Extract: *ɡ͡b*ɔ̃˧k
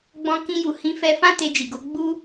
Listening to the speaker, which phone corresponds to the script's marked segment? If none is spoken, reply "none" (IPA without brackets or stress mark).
ɡ͡b